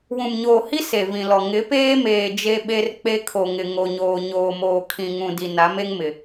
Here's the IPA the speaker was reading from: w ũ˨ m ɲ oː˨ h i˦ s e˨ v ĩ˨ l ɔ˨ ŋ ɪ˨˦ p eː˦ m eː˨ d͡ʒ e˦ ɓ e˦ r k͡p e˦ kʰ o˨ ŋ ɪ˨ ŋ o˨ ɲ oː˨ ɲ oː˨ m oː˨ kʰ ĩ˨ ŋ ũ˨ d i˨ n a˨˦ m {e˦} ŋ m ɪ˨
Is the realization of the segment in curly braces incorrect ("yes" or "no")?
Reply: no